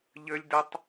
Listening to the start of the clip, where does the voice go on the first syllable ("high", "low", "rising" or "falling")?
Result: high